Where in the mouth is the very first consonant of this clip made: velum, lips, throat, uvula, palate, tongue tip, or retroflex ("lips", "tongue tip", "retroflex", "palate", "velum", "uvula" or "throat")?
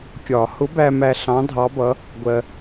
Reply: velum